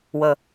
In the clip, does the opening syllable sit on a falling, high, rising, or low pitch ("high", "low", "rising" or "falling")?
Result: low